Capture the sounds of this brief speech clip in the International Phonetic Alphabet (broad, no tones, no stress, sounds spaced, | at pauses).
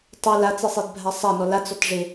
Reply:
tˤ e l a t͡s e sˤ e d bʱ a sˤ a n ɔ l a t͡s ɔ t ʐ e